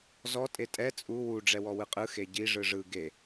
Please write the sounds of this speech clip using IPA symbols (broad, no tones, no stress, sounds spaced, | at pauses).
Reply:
z ɔ tʼ e tʼ ɛ t͡sʼ u w u ɖ͡ʐ ɛ w ɔ w ɯ qʼ ɯ x e ɟ i ʐ ɯ ʐ ɯ ɡ e